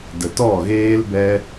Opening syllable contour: low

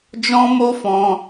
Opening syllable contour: high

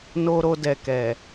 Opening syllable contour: low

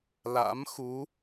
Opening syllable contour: rising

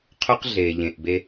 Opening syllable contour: high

